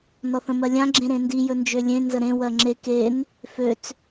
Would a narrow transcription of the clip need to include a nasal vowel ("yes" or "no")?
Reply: yes